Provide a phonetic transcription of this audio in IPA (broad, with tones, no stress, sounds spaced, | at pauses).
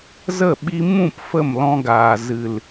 z ə˦˨ ɓ i˧ m ũ˦˨ p f ə˦˨ m l ɔ̃˧ ɡ aː˨ z ɨ˨ l